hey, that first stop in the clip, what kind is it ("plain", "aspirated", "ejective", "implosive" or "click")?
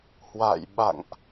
implosive